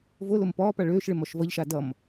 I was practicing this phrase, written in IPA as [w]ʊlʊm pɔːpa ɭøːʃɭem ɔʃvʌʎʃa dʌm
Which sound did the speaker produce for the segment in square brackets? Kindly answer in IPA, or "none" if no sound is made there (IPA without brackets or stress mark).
v